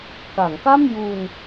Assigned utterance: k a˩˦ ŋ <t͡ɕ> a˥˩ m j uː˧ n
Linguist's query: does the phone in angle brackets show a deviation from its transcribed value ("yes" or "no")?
yes